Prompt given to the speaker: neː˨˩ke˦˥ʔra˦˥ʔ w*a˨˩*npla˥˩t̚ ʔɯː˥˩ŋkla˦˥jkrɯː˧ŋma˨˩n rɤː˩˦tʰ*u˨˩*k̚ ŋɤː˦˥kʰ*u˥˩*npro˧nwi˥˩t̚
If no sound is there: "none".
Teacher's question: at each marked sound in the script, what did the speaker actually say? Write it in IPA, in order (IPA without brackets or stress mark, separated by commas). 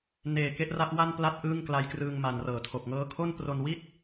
a˥˩, o˨˩, o˥˩